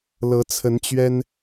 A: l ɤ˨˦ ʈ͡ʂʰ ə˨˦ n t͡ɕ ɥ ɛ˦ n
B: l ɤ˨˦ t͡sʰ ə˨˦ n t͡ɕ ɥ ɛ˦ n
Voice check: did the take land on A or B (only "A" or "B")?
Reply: B